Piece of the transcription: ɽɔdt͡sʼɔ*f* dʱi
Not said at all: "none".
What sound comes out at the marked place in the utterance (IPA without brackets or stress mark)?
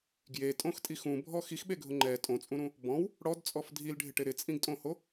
f